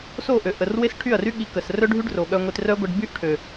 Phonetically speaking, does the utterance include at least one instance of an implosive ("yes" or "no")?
yes